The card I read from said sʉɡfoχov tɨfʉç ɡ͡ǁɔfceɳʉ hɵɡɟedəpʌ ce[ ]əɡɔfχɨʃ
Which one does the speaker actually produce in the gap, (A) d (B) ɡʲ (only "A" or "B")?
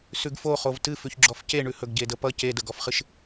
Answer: A